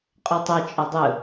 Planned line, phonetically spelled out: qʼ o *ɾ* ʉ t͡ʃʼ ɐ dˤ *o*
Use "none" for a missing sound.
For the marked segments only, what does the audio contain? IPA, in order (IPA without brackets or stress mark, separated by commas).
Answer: tˤ, ɵ